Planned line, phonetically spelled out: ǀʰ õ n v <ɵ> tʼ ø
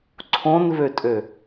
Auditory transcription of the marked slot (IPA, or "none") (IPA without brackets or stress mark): ø